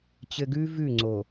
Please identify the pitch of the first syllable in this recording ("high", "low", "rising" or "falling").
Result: low